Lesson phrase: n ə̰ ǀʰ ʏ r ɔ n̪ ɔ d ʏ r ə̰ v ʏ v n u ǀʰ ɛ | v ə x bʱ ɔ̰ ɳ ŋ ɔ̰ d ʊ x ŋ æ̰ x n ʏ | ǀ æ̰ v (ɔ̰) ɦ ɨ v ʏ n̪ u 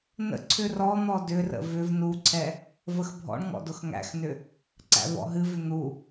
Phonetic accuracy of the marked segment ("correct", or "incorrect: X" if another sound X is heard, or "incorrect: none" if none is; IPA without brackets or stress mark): correct